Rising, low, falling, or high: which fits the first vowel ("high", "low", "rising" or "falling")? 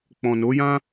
low